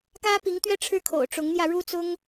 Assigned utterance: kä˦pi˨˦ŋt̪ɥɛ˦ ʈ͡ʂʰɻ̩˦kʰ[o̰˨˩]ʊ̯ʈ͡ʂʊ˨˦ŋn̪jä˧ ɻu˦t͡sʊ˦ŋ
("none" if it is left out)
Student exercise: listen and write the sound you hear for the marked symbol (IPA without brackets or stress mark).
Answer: o̰˨˩